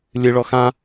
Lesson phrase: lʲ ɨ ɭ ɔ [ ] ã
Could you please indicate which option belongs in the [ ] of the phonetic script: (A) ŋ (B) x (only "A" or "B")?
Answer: B